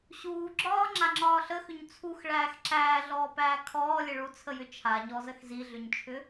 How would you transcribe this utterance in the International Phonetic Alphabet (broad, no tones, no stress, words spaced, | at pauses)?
ɕuːɡ͡ǁɒː ŋ͡ǁaŋ͡ǁɒːɬəxʏɲ t͡sʰuxɭæːx ǁæː ɮɔːpæːkʰɔː lʲəɭut͡sʰəjʏ t͡ʃʰaɲɔzəx ziɮʏɲt͡ʃʰʏ